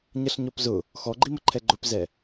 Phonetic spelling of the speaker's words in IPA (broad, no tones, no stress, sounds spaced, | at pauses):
ɲ ʌ ɬ ɲ ɔ p z ʊ | x ɔ ɡ͡ǃ i m ə ǃʰ ɛ ɡ͡ǃ ʊ p z ɛ